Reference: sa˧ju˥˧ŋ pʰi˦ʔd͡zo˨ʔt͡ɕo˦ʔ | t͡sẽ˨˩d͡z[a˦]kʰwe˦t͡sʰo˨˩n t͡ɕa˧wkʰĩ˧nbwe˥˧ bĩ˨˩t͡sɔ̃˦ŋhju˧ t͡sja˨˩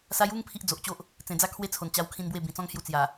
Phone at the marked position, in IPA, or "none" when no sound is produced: a˦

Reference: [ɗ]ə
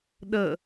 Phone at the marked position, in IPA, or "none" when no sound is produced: ɗ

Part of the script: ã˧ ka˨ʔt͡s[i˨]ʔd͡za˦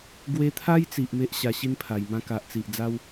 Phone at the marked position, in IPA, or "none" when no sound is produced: i˨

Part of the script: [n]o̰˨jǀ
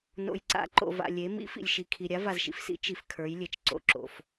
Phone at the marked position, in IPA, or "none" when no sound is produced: n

